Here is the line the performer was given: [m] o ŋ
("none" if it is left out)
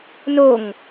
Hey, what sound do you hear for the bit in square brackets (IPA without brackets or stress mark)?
n